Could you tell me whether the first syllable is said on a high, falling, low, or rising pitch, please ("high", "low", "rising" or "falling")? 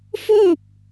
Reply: falling